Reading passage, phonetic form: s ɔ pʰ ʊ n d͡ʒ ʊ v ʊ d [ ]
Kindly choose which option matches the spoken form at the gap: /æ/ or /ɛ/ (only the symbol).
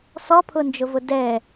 ɛ